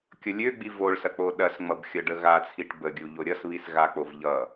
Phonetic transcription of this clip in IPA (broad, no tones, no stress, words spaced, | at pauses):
kʲʌlʲøɡ͡bi voɭsɐ k͡poɗɐsŋ͡mʌb xʲʌɖəɣat͡sʰiʈ bəɡʲu ʎoɾʲʌsβis ɣak͡pov ʎʌ